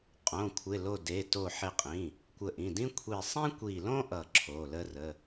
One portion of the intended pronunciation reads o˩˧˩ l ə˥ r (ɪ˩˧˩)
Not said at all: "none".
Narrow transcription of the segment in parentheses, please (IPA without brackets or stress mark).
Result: ə˩˧˩